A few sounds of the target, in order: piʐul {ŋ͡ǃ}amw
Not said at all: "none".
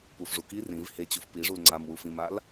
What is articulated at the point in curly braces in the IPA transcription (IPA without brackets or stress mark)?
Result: ŋ͡ǀ